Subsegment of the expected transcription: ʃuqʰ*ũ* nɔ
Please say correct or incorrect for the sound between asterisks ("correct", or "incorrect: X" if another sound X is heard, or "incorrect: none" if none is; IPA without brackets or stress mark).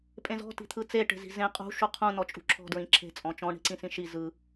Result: correct